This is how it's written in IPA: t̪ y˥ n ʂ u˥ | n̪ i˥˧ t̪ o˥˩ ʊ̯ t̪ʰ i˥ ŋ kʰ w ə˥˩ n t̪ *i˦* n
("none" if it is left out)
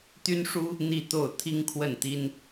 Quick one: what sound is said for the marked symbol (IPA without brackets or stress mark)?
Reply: i˥